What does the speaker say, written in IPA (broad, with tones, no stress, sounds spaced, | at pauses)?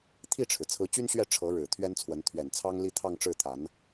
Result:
t̪ʰ i˥˩ ʈ͡ʂʰ ɻ̩˩ t͡sʰ ɹ̩˧˥ t͡ɕ y˥ n ɕ ɥ ɛ˥˩ ʈ͡ʂʰ ɤ˧˥ ɻ ɻ̩˨˩ t̪ʰ ɥ ɛ˥ n t͡sʰ w ə˧˥ n t̪ʰ ɥ ɛ˨˩ n t͡sʰ ɑ˥ ŋ l i˥˧ t̪ʰ ɑ˥˧ ŋ ʈ͡ʂ ɻ̩˥˩ t̪ʰ a˧˥ n